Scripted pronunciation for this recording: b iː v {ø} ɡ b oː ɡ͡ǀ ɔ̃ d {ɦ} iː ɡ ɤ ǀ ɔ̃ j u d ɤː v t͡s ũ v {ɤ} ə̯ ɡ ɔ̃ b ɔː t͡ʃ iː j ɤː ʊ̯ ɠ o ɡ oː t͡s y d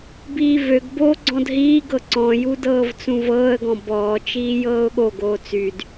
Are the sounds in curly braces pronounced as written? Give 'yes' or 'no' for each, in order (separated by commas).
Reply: yes, yes, no